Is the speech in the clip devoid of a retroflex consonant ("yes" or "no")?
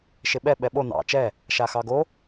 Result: yes